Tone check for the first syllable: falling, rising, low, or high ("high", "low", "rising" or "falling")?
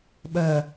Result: low